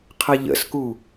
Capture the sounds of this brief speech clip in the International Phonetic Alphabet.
qʰ ɐ ʎ ə̰ s k u

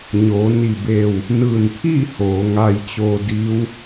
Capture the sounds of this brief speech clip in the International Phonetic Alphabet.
ɲ oː˩˧ n i˧˩ b eː˧˩ w | n ɯː˧˩ n pʰ iː˥˨ h oː˩˧ ŋ a˧ j t͡ɕ o˧ d iː˧˥ w

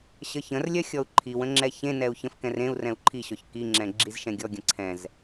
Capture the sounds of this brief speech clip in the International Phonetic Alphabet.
ɕ ə ç ə̃ r lʲ œ xʲ ɔ u̯ ǃʰ i w ə̃ ŋ͡ǁ ɛ ç ẽ n ɛ u̯ ç ə̃ f k ɛ̃ r ẽ u̯ r ɛ̃ u̯ ǃʰ i ɕ ɔ ç k i ŋ͡ǁ ɛ̃ ɡ͡ǁ i z ʃ ɛ̃ ɡʲ ɔ ɡʲ ə̃ ǀʰ ɛ̃ z

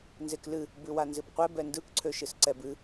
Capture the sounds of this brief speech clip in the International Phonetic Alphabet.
n z e k l ɨ | b ɨ w a n z ɨ b qʷ ɛ b ɛ n d ɯ k ǀʰ ø ʃ ɨ s ǀ ɛ b ɨ

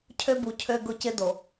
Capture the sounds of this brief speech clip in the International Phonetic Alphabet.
cʰ ø˦ b u˨ cʰ ø˦ ɡ ʊ˦ c ɪ˦ d o˨

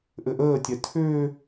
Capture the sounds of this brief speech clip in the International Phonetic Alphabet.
ʔ ɘ ʔ əː tʲ ɛ tʰ ʏː

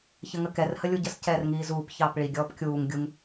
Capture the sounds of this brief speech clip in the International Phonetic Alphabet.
ç ə ŋ ə k ɛ r h ə lʲ u ɟ ə s c ɛː r ŋ iː z uː p ç ɑː p ɭ i ɡʲ ɔː p kʲ uː ŋ ɡʲ u ŋ

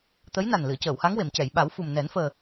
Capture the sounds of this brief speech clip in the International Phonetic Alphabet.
t̪ ə˧˥ j n a˨˩ n l ɨ˨˩˨ ə̯ c əː˨˩˨ w h a˧˥ ŋ w e˨˩˨ m c ɛ˨˩˨ j ɓ a˨˩˦ w f u˨˩ m n ɛ˨˩˦ n f əː˨˩

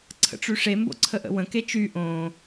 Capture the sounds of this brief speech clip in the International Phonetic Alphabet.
ǀʰ ə̰ ʈ͡ʂ ʉ ʂ e m b o̰ ǀʰ ə ʔ ə̰ w ə̃ k e t͡ʃ y ʔ õ

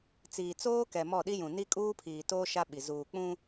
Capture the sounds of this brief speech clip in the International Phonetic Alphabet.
t͡s iː˨ t͡s oː˦ k ɛ˨ m ɔ˦˨ ɗ i˦ j ũ˨ n i˦ kʼ uː˦ pʰ iː˨ t oː˦ ʃ a˦ ɓ i˨ z uː˨ k͡p ũ˦

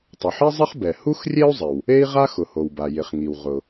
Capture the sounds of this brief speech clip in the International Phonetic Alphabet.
tˤ ʊ˩ ħ i˥ zˤ ɪ˥ χ b ɛ˩ h u˥ x rʲ e˥ u̯ zˤ ɪ˩ w | e˥ i̯ ʁ a˥ x ʊ˩ h o˩ w b a˩ j ɪ˩ χ ŋ i˩ w ʁ ʊ˩

